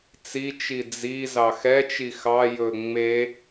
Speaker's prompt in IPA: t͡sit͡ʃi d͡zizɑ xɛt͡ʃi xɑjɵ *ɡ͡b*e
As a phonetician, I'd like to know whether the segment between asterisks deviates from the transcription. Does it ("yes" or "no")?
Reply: yes